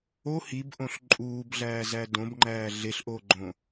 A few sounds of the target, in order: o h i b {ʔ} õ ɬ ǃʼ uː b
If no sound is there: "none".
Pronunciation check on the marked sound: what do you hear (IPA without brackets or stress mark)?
ʔ